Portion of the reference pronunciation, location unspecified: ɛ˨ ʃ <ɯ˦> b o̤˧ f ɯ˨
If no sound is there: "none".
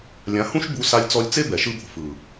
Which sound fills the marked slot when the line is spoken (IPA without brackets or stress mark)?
ɯ˦